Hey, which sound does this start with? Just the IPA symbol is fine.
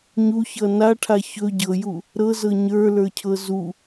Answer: ɲ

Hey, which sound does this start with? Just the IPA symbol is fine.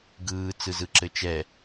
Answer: ɡ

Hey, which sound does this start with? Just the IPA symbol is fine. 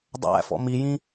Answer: dˤ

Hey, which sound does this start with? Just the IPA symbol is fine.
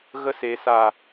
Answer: ɣ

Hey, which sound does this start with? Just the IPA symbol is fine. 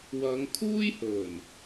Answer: w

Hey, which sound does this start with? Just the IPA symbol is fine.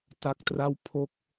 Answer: t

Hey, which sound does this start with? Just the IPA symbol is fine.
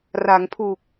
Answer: r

